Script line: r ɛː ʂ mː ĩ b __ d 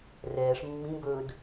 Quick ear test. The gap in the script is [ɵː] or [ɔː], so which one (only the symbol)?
ɵː